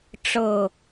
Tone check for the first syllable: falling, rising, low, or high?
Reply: falling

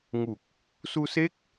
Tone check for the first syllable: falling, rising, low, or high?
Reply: low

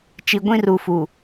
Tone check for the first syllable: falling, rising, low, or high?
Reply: low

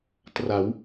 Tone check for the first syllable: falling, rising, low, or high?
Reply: rising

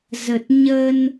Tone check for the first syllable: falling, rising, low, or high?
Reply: low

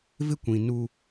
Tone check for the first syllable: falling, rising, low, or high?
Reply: high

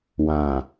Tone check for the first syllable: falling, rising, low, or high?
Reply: low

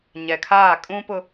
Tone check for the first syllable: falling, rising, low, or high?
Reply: low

